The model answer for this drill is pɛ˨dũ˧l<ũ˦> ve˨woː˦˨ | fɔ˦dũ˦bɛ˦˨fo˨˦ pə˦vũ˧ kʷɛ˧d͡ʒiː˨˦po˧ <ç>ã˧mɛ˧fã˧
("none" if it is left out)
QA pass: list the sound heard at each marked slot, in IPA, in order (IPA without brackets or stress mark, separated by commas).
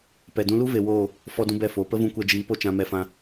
u˦, t͡ʃ